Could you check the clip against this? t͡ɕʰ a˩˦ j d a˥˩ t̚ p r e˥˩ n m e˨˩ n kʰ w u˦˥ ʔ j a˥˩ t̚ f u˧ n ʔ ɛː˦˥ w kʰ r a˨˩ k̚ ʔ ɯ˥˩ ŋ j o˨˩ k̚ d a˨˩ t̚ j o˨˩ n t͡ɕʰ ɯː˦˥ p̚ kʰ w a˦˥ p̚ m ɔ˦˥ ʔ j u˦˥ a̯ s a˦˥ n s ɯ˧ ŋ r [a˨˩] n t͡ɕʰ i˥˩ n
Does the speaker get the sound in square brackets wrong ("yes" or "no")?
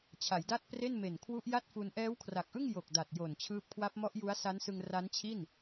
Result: yes